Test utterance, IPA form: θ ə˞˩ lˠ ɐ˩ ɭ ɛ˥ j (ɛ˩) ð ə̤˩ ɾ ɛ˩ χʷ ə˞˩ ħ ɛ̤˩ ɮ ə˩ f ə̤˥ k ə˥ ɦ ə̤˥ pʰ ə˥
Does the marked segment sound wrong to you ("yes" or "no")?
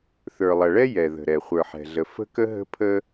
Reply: no